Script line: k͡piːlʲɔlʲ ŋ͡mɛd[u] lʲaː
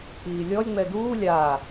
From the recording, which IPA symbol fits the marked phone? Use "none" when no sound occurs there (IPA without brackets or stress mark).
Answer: uː